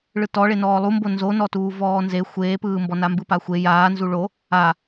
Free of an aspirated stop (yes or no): yes